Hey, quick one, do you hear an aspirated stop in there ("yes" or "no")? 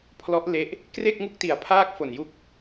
yes